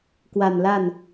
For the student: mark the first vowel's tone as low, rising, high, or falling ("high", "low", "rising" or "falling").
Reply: low